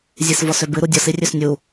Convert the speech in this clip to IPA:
zʲesvɔsøbɨ ɾudʲɔs irʲøsnʲu

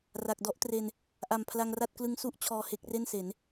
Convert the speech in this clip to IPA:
ra˨˩k̚dɔ˥˩ʔtre˧n | ʔa˨˩mpʰla˧ŋra˥˩t̚klɯ˦˥ŋ su˦˥ʔ t͡ɕʰɔː˧he˦˥k̚re˥˩nse˩˦n

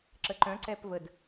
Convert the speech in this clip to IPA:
ǁəǃœ̃ ǀɛpvəd

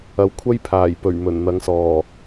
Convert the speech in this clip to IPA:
ɐ˨˧wkʷʰɐ˥jpʰaː˨˩j pɵ˨˩ɥ mɵ˨˩nn̪ɐ˨˧ŋsɔː˨˩

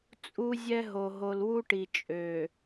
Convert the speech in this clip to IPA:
t͡sʼu˦zʲɛ˦ɦo˨ ɦo˨lwu˦ʈi˨ t͡ʃʼø˨

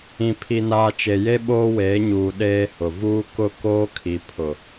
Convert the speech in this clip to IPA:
ĩ˨pʰi˨naː˨ t͡ʃe˨je˦ ɓoː˦weː˨˦ɲuː˨ ɗeː˦hʊ˨ vuː˦kʊ˦ koː˦kʰi˨pʰʊ˨

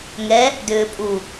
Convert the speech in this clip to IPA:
ŋɛ | dʏːpʼu

